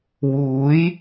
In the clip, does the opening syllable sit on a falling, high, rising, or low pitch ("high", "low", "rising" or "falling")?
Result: rising